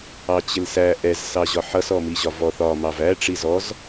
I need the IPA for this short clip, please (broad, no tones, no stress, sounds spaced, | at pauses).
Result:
ɑ t͡ɕ ɪ l s æ ʔ ɛ z s ɑ ʑ ɒ ħ ʌ s ɔ m i ʑ ɒ v ɔ θ ɒ m ɑ v æ ʈ͡ʂ i z ɔ z